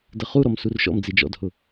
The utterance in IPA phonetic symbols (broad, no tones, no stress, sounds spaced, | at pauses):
d ə χ u ɾ ɔ m s u r ʃ ɔ̰ m d͡z i d͡ʒ ɔ̰ d h ʊ